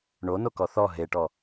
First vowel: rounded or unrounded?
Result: rounded